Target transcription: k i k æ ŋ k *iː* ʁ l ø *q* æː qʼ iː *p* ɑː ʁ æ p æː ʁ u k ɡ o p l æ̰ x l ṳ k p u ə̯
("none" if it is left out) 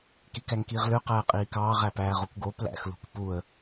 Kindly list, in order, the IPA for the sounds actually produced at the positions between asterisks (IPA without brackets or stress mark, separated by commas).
iː, q, k